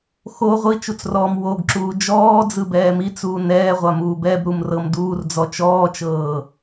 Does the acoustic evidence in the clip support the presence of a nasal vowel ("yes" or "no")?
no